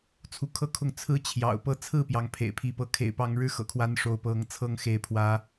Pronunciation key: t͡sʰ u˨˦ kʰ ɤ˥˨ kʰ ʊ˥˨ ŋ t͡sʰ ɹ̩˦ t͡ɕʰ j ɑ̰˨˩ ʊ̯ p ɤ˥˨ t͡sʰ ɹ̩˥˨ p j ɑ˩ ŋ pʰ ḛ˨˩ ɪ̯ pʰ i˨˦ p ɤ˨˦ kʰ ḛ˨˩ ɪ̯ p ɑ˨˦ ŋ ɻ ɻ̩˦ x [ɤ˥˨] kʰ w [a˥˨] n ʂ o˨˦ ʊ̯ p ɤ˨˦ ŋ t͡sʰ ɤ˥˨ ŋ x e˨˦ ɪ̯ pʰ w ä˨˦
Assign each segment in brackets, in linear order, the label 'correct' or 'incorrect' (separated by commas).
incorrect, incorrect